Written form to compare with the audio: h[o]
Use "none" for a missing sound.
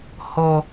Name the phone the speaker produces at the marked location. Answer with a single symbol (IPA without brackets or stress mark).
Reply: o